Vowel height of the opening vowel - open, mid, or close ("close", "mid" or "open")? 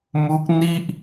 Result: close